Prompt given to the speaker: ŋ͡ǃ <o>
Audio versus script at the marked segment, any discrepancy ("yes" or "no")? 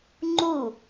yes